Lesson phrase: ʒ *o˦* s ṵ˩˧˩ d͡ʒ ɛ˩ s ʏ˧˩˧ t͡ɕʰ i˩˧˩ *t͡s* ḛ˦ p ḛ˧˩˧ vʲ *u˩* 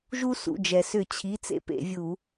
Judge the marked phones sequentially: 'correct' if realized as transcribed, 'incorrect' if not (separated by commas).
incorrect, correct, incorrect